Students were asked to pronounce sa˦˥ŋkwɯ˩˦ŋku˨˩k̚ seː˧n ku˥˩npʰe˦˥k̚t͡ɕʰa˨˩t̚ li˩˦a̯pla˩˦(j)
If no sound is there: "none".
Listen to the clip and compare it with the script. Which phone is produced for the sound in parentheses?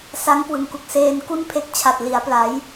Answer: j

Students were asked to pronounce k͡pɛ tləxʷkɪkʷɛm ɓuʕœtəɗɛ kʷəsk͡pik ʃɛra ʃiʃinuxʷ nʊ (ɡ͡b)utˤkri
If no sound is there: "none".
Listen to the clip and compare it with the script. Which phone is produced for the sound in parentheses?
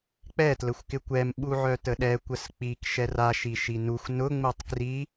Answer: ŋ͡m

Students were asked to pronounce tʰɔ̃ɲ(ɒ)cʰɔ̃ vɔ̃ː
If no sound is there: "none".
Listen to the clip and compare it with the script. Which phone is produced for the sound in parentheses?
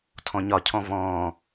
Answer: ɒ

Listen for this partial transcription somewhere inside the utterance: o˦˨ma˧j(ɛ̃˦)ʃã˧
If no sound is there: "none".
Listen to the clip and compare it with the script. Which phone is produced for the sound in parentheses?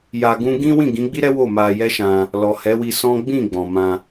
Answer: ɛ˦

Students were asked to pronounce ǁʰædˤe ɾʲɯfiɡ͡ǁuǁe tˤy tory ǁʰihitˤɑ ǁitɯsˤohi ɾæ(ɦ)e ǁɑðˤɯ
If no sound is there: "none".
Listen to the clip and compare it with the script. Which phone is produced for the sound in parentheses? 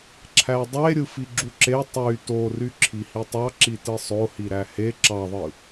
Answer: h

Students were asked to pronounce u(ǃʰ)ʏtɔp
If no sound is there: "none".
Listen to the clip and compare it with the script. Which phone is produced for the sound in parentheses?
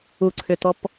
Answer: ǀʰ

